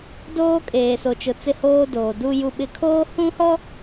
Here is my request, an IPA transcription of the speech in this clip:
d oː˦ kʼ eː˨ s o˨ t͡ʃ ʊ˨ t͡s ɪ˦˨ h oː˦ d oː˨ d u˦ j u˦ ɓ ɪ˦ kʰ oː˦ h ũ˦ h ɔ˦

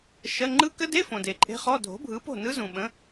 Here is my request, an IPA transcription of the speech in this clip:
ʃ ɜ˧˥˧ ŋ͡ǃ ɯ˦˥ k ə˦˥ d e˧˥˧ f õ˨ d e˨ ǃʼ e̤˦˥ χ ɔ˧˥˧ dʱ o̤˨˥ bʱ ɯ˨˥ p o̤˥˨ n ɯ˦˥ z ũ˨ ɓ ə̃˨˥

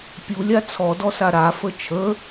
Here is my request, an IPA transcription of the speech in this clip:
pʲ u lʲ a t͡sʰ ɔ d ɔ s a ɾ a f ə t͡ʃʰ ə

